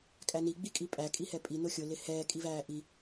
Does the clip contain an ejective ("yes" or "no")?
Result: yes